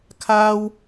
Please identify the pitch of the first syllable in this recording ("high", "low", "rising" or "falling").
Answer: high